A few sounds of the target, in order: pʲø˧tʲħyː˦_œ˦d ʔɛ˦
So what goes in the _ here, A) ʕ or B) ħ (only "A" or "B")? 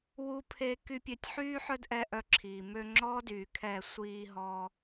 B